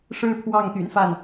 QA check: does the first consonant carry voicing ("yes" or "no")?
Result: no